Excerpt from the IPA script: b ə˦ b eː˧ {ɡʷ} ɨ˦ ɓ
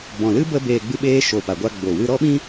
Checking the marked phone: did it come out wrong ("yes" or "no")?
yes